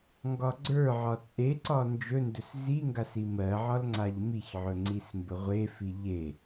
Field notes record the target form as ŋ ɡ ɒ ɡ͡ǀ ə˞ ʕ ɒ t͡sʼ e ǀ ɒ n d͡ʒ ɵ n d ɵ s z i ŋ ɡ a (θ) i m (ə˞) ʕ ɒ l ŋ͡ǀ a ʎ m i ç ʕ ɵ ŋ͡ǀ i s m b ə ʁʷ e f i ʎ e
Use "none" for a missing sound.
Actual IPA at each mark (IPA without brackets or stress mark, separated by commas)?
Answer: s, ɜ